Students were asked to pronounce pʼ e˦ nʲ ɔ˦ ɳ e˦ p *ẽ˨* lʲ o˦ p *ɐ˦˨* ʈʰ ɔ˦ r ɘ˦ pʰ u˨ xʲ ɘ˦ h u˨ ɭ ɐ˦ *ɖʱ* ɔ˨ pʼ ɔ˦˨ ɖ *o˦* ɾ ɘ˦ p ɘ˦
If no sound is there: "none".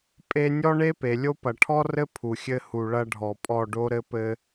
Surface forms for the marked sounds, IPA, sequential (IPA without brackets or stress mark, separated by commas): e˨, ɐ˨, ɖʱ, o˦